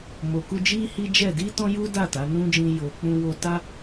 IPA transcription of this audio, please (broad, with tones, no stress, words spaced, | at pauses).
mo˨ku˧ d͡ʒi˦hi˦d͡ʒɛ˦˨ di˧ tɔ̃˦ju˦ da˦˨ta˨˦nũ˦d͡ʒĩ˧ jo˨k͡pũ˧ wo˧ta˦